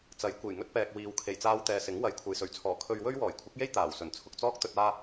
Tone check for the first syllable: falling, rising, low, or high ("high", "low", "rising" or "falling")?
rising